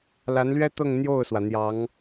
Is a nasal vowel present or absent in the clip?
absent